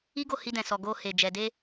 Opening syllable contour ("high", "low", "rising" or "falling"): high